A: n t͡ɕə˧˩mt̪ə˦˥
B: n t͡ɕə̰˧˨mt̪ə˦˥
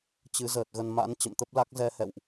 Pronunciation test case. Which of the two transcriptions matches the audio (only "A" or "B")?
B